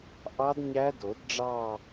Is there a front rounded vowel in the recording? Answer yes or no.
no